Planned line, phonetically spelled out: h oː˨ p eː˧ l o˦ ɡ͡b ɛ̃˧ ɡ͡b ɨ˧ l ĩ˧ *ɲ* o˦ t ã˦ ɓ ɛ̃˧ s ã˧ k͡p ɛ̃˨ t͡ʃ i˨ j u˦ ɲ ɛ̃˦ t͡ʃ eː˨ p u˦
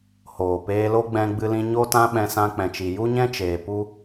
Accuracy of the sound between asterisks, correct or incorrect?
correct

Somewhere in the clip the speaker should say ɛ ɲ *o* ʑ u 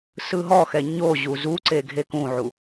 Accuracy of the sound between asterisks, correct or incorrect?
correct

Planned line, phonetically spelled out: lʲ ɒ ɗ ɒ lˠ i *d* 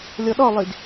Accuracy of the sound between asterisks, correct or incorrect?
correct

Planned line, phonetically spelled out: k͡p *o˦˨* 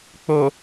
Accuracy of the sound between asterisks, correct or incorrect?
incorrect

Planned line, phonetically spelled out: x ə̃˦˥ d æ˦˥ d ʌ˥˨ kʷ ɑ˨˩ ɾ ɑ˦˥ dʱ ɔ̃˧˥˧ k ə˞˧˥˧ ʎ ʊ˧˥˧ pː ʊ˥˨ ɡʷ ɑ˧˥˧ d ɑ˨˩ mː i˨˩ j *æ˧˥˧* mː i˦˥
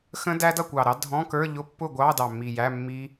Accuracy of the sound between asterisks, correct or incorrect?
correct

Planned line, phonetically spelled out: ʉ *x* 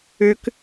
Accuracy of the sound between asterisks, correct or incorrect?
incorrect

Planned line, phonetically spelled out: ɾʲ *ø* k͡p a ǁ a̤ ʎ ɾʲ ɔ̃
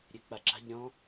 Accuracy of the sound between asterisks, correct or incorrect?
correct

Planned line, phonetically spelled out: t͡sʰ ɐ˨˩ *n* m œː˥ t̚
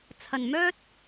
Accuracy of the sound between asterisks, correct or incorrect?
correct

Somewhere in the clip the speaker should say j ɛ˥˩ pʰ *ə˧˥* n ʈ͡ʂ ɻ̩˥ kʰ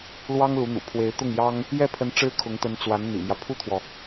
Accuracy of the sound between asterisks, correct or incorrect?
correct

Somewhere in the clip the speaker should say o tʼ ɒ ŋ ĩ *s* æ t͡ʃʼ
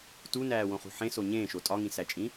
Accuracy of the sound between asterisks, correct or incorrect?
correct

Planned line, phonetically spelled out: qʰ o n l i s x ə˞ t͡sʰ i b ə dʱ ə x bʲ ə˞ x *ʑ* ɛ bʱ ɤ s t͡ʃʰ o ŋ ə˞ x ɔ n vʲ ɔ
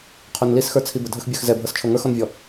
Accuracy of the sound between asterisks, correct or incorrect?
incorrect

